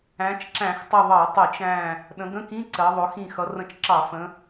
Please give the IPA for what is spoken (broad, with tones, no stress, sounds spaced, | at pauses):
æ̃˩˧ t͡ʃ ǁ æ̃˧˩˧ x tˤ ɪ˧˩ ðˤ ɑ˧˩˧ tˤ i˧˩˧ t͡ʃ æ̃˧˩ | ɗ ə̃˩˧ ɡ ə̃˧˥˧ k ĩ˧˥˧ ǀ ɜ˩˧ ðˤ ʊ˩˧ x ĩ˧˩ x ʌ˩˧ r ə̃˧˩ t͡ʃ ǁ ɑ˧˩˧ f ə̃˩˧